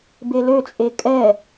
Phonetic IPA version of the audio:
b e l ø t͡sʼ e kʼ ɛ

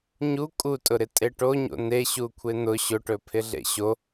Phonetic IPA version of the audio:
ɲ u kʼ u tʼ ʊ ɾ ɪ tʼ e ʈ o ɲ o̰ n e ɕ u kʷʰ e n̪ ʊ ɕ ʊ ʈ ɵ pʰ ɪ ɮ ḛ ɕ o

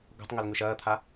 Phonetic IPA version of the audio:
ɡ o̤ tˤ ŋ ɵ l ŋ ʉ ʃ ɐː t̪ʰ a

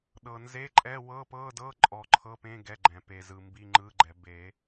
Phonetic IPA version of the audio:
ɗ ɤ˨˩ n z e˧˥˧ ǃʼ ɛ˧˥˧ w ɤ˧˥˧ p ɤ˧˥˧ d ɤ˧˥˧ ǃʼ ɔ˨˩ ǃʰ ɤ˧˥˧ p ẽ˧˥˧ ɡ ɛ˧˥˧ ɡ͡ǃ ɛ̃˨˩˦ p e˨˩ z ɯ˨˩ m b i˧˥˧ ŋ͡ǃ ɯ˧˥˧ ɡ͡ǃ ɛ˨˩˦ b e˨˩˦

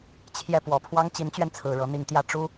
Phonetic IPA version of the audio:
t͡ɕʰ j ɛ˥˩ p w ɔ˨˩ pʰ w ɑ˥ ŋ t͡ɕ i˧˥ n t͡ɕ ɥ ɛ˧ n t͡sʰ ɹ̩˨˩ ɻ ɤ˧˥ n̪ i˧˥ ŋ t̪ j ä˥˩ ʈ͡ʂ u˥

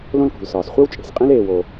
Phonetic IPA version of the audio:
l õ˦ l k ṳ˩ l s ɒː˩ s χʷ e˥ w t͡ʃʼ e̤˩ s qʼ ĩ˦ l eː˨ w o˨

